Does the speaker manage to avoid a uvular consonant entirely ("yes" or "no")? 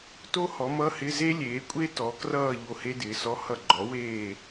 yes